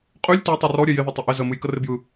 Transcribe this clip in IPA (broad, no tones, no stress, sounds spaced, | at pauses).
qʼ y lʲ t e tˤ ɯ r ɔ ɾʲ ɛ j ɪ ð ɪ tˤ ɪ ʔ ɪ z ə m ɨ j k ə r ɪ b j ɯ